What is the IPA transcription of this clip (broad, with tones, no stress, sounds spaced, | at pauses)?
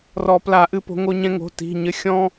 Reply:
r ɔ˨˩˦ p l a˨˩˦ ʔ ɨ˨˩˦ p o̤˩˥ ŋ o˧ ɲ ɛ̃˧ ŋ o̤˩˧˩ t i̤˩˧˩ ɲ ɘ˩˥ xʲ ɔ̃˧